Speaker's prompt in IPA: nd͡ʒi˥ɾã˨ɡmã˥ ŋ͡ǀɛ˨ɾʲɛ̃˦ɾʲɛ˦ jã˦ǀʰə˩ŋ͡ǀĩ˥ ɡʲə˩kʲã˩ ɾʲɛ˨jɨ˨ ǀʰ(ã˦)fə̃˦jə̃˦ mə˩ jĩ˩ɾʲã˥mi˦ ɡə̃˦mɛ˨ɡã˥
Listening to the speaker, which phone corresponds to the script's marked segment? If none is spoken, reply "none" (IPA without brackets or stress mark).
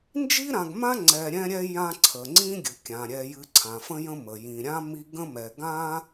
ã˩